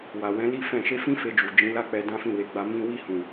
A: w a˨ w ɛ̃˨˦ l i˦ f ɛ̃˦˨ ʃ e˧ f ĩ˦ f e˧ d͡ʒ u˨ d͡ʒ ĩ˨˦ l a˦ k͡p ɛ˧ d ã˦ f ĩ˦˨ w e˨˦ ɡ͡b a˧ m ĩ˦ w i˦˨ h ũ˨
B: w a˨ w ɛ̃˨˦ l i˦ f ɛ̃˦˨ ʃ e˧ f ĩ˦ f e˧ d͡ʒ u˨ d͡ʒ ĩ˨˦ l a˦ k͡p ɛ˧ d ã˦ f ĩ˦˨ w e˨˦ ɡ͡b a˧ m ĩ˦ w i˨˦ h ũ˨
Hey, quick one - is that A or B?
A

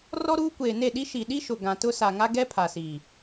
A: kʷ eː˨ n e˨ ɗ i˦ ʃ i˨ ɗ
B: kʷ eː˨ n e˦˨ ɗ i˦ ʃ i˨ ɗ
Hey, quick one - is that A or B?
B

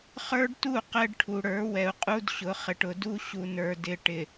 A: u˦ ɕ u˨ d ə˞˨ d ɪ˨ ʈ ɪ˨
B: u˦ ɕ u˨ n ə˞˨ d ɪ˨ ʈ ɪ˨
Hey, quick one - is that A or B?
B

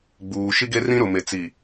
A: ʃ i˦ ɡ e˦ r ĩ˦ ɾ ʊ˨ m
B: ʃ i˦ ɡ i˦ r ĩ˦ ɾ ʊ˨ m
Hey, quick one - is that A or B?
A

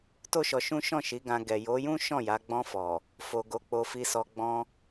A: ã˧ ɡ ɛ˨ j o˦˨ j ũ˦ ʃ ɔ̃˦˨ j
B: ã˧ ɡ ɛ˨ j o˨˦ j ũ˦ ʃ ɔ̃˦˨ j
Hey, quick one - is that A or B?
B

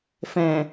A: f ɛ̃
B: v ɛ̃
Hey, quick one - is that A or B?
A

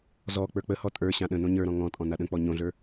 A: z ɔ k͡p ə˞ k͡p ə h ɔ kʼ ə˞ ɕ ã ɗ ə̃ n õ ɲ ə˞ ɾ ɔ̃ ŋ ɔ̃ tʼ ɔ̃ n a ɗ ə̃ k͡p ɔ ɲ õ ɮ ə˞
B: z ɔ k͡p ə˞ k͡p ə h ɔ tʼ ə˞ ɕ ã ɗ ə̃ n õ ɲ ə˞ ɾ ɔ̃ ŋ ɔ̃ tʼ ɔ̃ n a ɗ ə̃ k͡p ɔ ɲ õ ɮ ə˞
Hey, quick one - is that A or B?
B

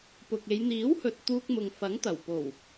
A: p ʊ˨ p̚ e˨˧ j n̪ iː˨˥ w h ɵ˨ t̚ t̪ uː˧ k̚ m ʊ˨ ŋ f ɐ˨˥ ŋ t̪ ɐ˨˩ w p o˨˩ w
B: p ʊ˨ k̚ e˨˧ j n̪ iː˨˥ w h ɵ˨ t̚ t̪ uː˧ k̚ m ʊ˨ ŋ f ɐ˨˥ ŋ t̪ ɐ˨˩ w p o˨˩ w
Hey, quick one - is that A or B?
B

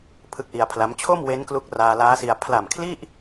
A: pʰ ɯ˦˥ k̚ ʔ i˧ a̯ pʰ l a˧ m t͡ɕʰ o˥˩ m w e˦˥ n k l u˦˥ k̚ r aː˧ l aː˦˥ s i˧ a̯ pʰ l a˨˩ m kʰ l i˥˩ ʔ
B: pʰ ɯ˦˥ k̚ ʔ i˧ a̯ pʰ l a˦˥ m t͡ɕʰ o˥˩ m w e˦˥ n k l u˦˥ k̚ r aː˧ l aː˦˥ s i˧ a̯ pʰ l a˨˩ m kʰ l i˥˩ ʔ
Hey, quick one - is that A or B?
B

